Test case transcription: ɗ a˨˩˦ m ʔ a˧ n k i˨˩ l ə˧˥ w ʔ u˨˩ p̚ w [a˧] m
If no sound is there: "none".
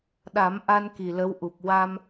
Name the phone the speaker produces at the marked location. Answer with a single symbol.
a˧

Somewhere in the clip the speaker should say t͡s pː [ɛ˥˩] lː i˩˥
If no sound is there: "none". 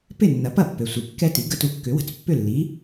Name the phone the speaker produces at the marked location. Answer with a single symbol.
ʏ˥˩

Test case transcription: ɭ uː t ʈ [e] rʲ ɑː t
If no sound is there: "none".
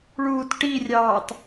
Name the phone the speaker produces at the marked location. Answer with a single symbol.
i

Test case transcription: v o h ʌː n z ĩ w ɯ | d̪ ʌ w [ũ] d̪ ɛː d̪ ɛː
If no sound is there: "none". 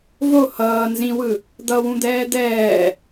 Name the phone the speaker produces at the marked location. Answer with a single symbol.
ũ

